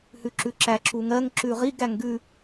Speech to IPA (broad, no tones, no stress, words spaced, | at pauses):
hʉǁʉǁæ ǁuŋɜŋ ǁʉʁiɡ æŋɡʉ